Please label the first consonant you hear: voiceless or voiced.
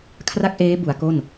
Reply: voiceless